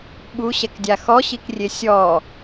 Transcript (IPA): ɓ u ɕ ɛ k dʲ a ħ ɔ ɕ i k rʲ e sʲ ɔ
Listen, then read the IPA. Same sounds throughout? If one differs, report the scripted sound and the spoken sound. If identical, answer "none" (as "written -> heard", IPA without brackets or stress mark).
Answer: ħ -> x